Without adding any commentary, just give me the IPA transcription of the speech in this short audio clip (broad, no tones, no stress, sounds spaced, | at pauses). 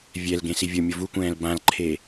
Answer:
vʲ ɛ l ɡ ẽ s i vʲ o mʲ ʊ v u kʷ ɛ̃ː l b ã l ǃʰ e